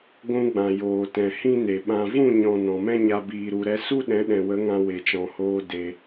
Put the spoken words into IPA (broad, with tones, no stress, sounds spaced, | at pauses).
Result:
ɡʷ ũ˧ ɡ͡b ã˨ j oː˨ t ɛ̃˨ h ĩ˦ n e˨ ɓ ã˨ v ũ˦˨ ɲ ɔ̃˨ n ɔ̃˨ m ɛ̃˦ ɲ a˧ b iː˨ ɾ u˨ ɾ ɛ˧ s u˦ ɗ ɛ̃˨˦ ɗ ɛ̃˨ w ə˨˦ ŋ ã˧ w e˨ t͡ʃ ɔ̃˨ h oː˧ d e˧